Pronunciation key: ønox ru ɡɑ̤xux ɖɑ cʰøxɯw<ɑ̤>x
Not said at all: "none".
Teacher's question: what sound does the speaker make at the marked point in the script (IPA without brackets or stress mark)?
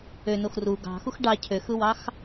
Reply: ɑ